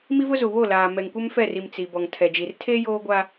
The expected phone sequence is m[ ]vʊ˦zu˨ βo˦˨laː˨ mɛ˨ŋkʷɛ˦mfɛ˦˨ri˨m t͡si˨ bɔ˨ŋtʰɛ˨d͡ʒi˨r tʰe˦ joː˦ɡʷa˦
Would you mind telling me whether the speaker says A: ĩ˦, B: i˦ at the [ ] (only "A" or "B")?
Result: B